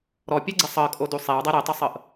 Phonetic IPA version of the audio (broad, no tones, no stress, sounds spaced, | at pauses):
ɾ ɔ pʲ e ɡ͡ǀ i sˤ ɤ kʼ o d u sˤ e w dˤ ɛ ɾ e tˤ o sˤ ɤ ʔ